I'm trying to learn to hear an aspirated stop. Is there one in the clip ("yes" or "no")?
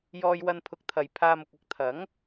yes